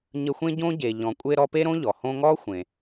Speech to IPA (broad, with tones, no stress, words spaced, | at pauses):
ɲə˦xʷẽ˥ɟõ˥ɟe˨ ʎɔ̃˨kʷʼe˦ ɾɔ˦pe˥ɾõ˥ʎɔ˩ hõ˦ŋɔ˥xʷẽ˨